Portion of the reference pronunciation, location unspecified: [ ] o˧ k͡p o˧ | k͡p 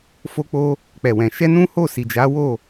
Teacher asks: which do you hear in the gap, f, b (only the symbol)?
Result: f